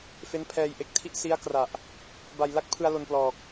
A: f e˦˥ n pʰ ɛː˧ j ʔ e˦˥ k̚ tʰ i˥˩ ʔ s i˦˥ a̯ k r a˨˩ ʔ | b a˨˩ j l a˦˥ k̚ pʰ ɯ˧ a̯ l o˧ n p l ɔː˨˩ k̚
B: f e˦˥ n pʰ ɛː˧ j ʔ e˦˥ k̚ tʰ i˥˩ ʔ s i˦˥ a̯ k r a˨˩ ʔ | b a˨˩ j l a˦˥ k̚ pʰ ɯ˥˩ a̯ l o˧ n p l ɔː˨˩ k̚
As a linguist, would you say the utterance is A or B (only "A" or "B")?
A